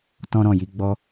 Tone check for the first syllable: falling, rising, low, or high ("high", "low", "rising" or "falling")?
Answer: high